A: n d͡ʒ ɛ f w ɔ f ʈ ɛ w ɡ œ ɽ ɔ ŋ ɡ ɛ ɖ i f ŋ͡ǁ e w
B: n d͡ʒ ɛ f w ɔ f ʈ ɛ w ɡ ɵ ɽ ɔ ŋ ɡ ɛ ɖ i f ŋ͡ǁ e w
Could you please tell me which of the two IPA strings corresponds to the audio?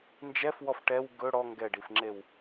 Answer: B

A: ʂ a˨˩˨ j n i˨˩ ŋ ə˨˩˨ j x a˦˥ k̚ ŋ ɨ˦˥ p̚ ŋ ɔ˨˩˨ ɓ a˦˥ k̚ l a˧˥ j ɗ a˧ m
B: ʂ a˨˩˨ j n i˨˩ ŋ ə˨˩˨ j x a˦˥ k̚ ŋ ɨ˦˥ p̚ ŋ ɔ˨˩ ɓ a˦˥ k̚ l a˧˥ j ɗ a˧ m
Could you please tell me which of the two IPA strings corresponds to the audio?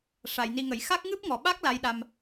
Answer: A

